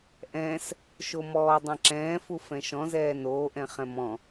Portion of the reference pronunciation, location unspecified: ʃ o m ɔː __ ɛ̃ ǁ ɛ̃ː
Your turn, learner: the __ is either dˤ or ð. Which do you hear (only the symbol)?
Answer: dˤ